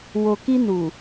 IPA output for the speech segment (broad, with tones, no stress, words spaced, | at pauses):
wo˨ki˧nu˨